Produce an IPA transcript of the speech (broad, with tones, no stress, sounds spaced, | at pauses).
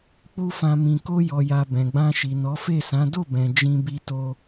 k͡p u˦ f ã˧ m ĩ˨ k o˧ j ɔ˨ j a˨ b ɛ̃˨ ɡ͡b ã˧ ʃ i˨ n ɔ˨˦ f e˦˨ s ã˨˦ d o˦˨ b ɛ̃˨ d͡ʒ ĩ˧ b i˧ t o˧